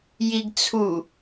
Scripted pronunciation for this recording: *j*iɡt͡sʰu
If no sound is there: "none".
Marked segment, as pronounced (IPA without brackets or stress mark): j